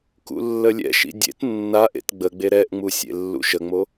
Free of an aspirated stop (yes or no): yes